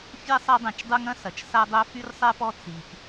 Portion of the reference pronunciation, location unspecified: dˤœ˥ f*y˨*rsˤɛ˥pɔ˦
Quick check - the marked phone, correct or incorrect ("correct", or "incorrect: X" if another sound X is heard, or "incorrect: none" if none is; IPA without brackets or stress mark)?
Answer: incorrect: y˥